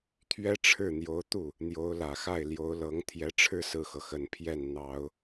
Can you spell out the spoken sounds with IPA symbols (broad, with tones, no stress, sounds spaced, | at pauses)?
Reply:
t̪ʰ ɥ ɛ˥ ʈ͡ʂʰ ɻ̩˥˩ n̪ j o˧˥ ʊ̯ t̪ u˥˩ | n̪ j o˧˥ ʊ̯ l ä˨˩ x a˥˩ ɪ̯ l j o˧˥ ʊ̯ l ɤ˧˥ ŋ t̪ʰ j ɛ˧˥ ʈ͡ʂʰ ɻ̩˥˧ s ɹ̩˥˩ x ɤ˩ x ə˨˩ n pʰ j ɛ˥˩ n n̪ ɑ˨˩˦ ʊ̯